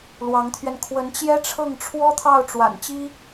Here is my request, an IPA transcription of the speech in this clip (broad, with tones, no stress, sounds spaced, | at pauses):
l w ɑ˧˥ ŋ t̪ʰ ɥ ɛ˧ n kʰ w ə˧˥ n t͡ɕ j ɛ˥ ʈ͡ʂʰ ɤ˥˩ ŋ ʈ͡ʂʰ w ɔ˥ t̪ʰ ɑ˥˩ ʊ̯ ʈ͡ʂ w a̰˨˩ n t͡ɕ i˥